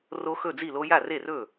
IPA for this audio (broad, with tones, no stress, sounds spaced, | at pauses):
r o˦˥ x ɵ˥˨ d͡z i˥˨ l o˦˥ j a˥˨ r e˥˨ r ɵ˥˨